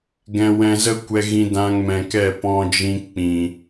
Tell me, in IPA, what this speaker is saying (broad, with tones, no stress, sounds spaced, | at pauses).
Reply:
ɡ ɛ̃˧ w ɛ̃˧ z ə˦ kʷ ɛ˧ ɣ ĩ˧ d ã˧ ŋ m ɛ̃˨ k ɛ˦˨ p ɔ̃˧ d͡ʒ ĩ˧ k͡p ĩ˨